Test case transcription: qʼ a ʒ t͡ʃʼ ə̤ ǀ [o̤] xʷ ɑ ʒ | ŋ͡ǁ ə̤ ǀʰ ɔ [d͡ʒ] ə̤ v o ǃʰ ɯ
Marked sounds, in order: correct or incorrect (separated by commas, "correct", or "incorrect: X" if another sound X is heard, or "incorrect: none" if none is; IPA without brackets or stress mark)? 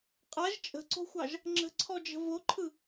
correct, correct